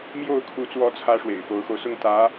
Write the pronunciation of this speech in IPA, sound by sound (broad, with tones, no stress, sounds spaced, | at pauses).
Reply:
m j o˥˩ ʊ̯ kʰ u˧˥ t͡s w ɔ˧˥ t͡sʰ ä˥ ʂ w ḛ˨˩ ɪ̯ f o˧˥ ʊ̯ x o˧ ʊ̯ s ʊ˥˩ ŋ t̪ ä˧˥